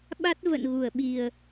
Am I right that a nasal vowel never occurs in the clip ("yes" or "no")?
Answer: yes